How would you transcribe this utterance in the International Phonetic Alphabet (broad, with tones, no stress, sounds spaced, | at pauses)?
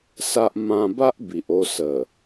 s a˦ ʔ m ã˧ b a˦ ʔ b i˨ ʔ o˧ s ə˨˩